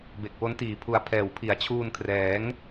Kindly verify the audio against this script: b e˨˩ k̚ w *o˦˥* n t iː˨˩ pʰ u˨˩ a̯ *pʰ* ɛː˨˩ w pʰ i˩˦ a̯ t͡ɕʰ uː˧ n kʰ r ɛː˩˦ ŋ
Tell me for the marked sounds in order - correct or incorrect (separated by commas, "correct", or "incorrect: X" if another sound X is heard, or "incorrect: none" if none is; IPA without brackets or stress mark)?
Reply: correct, correct